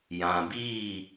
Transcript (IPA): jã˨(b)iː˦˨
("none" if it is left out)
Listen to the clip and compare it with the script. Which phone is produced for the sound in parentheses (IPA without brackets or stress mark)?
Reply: b